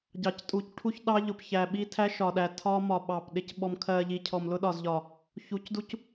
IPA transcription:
ɟ ɑ˨ c tʼ u˨˦ c ʈʰ u˦ ç ɗ ɑ˦ ʎ ʊ˨ p ç æ˨ ɓ i˦ tʰ æ˦ ʃ ɒ˨ ɗ æ˨ tʰ ɒ˦ m ɒ˨ ɓ ɑ˨ p ɗ ɪ˨ c ɓ ɔ˨ m kʰ ɜ˨ ʎ i˨ cʰ ɔ˨ m l ʊ˦ ɗ ɒ˨ z ʎ ɒ˨ | ç u˨˦ c d u˦ c

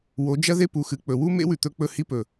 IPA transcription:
w o˨˦ d͡ʒ ɐ˦ ð e˦ p u˨ x ɨ˨ k͡p ɵ˨ w u˦ m ḛ˦ w ʉ˨ t̪ ɵ˧ k͡p ɵ˦˨ h i˦ p ɵ˨

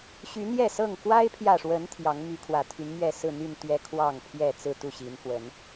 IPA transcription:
ɕ y˨˦ n̪ j ɛ˥˨ s ɤ˥˨ ŋ k w a˦ ɪ̯ pʰ j ä˨ ʂ w ə˨˦ n t̪ʰ j ɑ˨˦ ŋ m y˨˦ kʰ w ä˨˩ t̪ʰ y˨˦ n m ɥ ɛ˥˨ s ɹ̩˥˨ n̪ y˥˨ n t̪ ɥ ɛ˦ kʰ w ɑ˥˨ ŋ pʰ j ɛ˥˨ t͡s ɹ̩˥˨ t̪ u˥˨ ɕ i˨˦ n f w ə˨˦ n

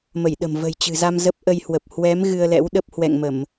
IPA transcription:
m ə˧˩ j ɗ ə̤˨˩ m v ə̤˨˩ j t͡ɕ ɨ̤˨˩ z a˧ m z ə˦˥ p̚ ʔ ə˧ j h w ə˨˩ p̚ h w ɛ˨˦ m ɣ ɨ˧ ə̯ l ɛ̰˧˥ w ɗ ə˦˥ p̚ h w ɛ̰˧˨ ŋ m ə˧˩˨ m

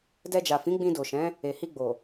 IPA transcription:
d ɛ˧ d͡ʒ a˨ f ĩ˨˦ ɡ͡b ĩ˧ d o˨ ʃ ɛ̃˨˦ | e˨ h i˧ ɡ͡b o˨

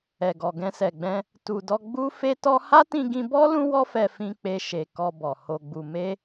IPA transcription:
ɛ˨ ɡ ɔ˨ ɡ ɛ̃˧ s ɛ˨ ɡ͡b ɛ̃˧ | t u˨ d ɔ˧ ɡ͡b u˦ f e˦ t ɔ˦ h a˦ t ĩ˧ ɡ ĩ˧ b ɔ˦ l ũ˦ w ɔ˦ f ɛ˧ f ĩ˧ k͡p e˧ ʃ e˨ k ɔ˧ b ɔ˨ h o˨ ɡ͡b u˨ m e˧

